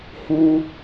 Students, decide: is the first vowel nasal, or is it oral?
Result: nasal